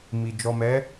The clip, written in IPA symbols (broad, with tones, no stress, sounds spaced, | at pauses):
m i˨ d͡ʒ ɔ˨ m ɛ˨˦